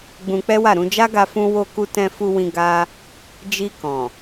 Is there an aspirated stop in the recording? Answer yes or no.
no